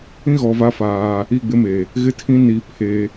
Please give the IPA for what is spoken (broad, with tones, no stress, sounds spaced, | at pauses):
ĩ˦ ɣ ɔ˨ v a˦ f aː˦ | i˦˨ ɡ͡b ɪ˦ m e˨ | ɣ ɪ˦ tʰ ĩ˦ n i˦ pʰ e˦